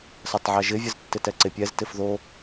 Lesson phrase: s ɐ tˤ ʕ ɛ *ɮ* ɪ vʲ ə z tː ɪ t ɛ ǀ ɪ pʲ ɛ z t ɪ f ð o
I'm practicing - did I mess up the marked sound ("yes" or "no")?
yes